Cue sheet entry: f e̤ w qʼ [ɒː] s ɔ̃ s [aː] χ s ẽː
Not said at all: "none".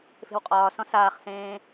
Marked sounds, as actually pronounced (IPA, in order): ɒː, aː

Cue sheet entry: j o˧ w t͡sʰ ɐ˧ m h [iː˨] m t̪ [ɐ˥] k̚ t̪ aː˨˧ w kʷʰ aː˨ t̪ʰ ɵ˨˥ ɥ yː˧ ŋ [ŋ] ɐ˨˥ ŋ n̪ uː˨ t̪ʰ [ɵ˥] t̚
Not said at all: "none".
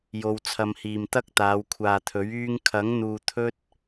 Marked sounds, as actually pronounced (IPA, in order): iː˨, ɐ˥, kʰ, ɵ˥

